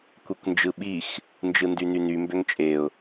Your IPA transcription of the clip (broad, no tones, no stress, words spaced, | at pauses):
kʷekʷnd͡ʒɯɓix | nd͡ʒɯndynyny mbøŋt͡ʃʼeʊ̯